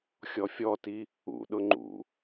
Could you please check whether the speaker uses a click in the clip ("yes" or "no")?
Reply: yes